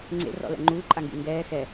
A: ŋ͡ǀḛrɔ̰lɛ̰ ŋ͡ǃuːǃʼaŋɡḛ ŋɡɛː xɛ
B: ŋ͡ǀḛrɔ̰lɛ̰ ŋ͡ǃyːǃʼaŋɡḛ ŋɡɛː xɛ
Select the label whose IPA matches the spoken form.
A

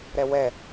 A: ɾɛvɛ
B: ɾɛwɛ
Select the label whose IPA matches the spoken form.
B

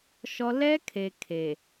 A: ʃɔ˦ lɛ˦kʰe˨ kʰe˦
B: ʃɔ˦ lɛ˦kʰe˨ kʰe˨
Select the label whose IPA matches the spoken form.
B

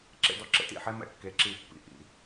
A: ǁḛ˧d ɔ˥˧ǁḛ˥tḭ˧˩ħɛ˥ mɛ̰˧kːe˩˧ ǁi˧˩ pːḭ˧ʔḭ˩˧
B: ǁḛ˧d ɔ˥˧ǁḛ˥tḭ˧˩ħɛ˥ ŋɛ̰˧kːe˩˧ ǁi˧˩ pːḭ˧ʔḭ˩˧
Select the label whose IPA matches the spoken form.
A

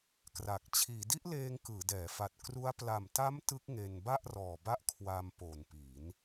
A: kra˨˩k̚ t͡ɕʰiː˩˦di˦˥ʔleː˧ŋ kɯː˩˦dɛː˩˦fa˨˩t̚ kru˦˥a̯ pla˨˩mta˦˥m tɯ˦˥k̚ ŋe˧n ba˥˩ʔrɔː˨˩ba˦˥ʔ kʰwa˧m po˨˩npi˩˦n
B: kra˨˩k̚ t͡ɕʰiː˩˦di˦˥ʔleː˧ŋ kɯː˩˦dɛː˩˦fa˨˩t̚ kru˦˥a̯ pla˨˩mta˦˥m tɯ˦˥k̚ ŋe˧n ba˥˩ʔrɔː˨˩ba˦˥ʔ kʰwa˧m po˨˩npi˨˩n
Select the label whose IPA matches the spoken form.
A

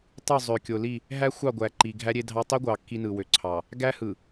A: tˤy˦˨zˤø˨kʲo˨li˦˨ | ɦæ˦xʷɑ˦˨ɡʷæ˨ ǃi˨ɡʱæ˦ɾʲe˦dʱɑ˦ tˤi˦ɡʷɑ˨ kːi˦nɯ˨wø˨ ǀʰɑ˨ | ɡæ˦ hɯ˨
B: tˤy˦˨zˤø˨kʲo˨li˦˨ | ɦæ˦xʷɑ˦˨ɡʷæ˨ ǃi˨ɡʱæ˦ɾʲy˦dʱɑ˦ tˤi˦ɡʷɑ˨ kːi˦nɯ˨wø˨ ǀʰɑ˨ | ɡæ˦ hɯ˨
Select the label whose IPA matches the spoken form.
A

